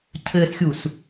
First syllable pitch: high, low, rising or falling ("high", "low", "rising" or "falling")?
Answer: low